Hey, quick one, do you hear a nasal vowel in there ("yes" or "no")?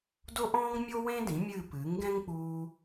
yes